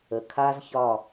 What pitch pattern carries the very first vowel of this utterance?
low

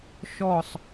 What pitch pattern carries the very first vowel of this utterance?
falling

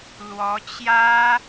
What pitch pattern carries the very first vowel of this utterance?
rising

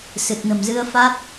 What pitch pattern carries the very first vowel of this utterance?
low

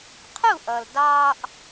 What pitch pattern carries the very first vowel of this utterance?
falling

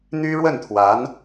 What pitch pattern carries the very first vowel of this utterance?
high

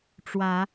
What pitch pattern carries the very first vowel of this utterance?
rising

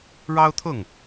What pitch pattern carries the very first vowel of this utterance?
high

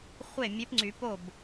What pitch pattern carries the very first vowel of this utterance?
falling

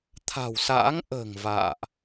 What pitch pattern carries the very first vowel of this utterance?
low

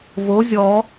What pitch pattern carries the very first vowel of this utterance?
rising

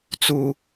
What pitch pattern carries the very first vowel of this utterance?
high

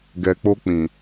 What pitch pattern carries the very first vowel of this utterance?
low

